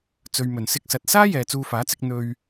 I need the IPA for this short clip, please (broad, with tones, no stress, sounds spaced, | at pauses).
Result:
t͡s ɵ˨ ɥ m ɵ˨˩ n s ɪ˧ k̚ s ɐ˨ t̚ s aː˥ j ɛː˨ t͡s uː˧ f aː˨˥ t͡s ɪ˨˥ k̚ n̪ ɵ˧ ɥ